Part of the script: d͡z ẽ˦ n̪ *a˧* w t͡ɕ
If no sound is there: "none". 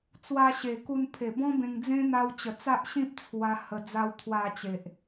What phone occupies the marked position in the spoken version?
a˧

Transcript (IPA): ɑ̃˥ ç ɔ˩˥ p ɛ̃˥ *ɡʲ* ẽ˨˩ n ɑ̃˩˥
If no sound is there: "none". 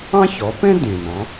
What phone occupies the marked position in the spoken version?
d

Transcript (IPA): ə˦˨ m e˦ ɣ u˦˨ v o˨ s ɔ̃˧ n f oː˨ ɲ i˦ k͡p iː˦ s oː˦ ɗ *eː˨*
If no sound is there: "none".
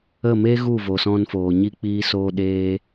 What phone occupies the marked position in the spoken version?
eː˦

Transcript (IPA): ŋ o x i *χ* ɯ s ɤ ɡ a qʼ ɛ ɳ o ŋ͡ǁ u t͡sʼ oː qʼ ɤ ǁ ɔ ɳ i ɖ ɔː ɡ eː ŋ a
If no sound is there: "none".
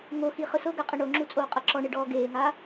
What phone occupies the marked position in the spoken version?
χ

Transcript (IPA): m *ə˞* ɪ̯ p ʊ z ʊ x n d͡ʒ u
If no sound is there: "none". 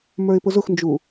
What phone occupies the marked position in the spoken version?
ə˞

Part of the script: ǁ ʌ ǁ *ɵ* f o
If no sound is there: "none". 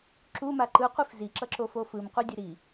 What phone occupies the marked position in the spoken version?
o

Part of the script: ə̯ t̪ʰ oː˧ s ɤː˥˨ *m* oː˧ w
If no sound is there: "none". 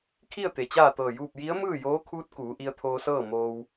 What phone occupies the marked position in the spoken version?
m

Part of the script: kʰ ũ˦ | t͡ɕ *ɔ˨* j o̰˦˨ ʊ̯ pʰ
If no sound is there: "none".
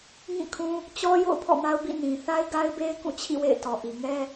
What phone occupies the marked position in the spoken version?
ɔ˦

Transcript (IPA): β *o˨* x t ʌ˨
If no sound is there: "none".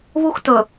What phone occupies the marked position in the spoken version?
o˦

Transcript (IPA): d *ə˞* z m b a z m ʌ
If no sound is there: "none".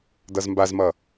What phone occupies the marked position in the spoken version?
ʌ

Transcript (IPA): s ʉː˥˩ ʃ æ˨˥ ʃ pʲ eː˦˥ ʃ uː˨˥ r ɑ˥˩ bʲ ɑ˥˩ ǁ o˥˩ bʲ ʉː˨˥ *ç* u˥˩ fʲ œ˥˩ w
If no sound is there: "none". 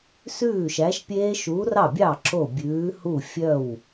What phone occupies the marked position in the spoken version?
h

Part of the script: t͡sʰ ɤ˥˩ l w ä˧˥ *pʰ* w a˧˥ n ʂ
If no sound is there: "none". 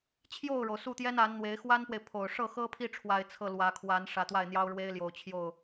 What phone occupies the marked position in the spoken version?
kʰ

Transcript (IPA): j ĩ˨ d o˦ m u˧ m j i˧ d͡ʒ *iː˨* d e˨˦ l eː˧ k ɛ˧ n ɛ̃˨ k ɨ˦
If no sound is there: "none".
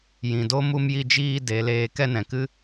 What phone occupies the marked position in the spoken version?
iː˧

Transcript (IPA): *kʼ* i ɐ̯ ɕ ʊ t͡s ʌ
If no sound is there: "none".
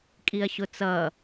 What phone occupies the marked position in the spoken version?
kʼ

